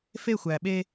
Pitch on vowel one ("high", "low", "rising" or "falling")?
falling